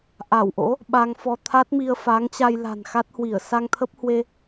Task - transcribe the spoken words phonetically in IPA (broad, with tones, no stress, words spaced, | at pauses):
ʔa˧˩wʔo̰˧˥ | ɓa˧ŋfɔ˧ t̪ʰa˦˥t̚mi˧ə̯fa˨˦ŋt͡ɕa˧j la̤˨˩nxa˦˥t̚hwi˧˩ə̯ sa˧ŋt̪ʰə˦˥p̚hwe˧